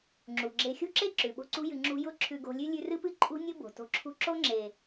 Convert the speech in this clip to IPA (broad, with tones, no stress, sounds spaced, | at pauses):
ŋ͡ǁ u˨ ɡ͡ǁ e˧ xʲ ṳ˦ ǁ e˦ ǁ ʉ˨ ɓ o̤˦ ǀ ṳ˦ j ɨ˧ ŋ͡ǁ ṳ˧ j ʊ˦˨ ǁʰ ʉ˧ ɡ o̤˧ lʲ ʉ˦ lʲ ʉ˧ r ɨ˦ p ɨ˦ ǃʼ ṳ˦ nʲ ʊ˦ b o̤˨ t o̤˧ ǁʰ ṳ˦ ǁ o˦ ŋ͡ǁ e˨